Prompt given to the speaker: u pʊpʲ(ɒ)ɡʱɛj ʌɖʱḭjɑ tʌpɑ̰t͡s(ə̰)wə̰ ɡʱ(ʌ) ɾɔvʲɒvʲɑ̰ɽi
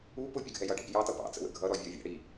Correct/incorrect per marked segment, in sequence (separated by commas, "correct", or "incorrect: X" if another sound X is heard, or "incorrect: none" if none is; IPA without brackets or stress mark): incorrect: ʌ, correct, correct